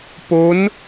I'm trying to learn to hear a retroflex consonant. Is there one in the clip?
no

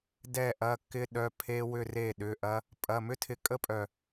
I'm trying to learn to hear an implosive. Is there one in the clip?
yes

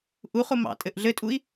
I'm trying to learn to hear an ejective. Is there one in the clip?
yes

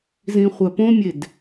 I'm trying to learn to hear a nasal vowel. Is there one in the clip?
yes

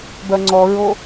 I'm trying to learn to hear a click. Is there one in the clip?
yes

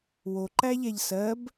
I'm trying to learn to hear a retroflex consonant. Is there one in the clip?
no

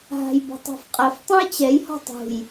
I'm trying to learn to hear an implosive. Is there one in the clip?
no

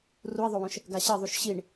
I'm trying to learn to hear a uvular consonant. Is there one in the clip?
no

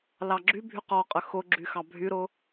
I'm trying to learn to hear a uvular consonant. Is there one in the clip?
yes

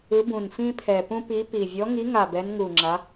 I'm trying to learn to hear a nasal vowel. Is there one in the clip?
yes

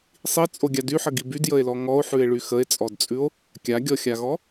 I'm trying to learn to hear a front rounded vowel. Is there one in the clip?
yes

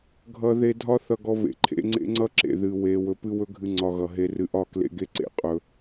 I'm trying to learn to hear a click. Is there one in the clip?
yes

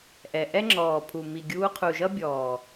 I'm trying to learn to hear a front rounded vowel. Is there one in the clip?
no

